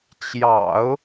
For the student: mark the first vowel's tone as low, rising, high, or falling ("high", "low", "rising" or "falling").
low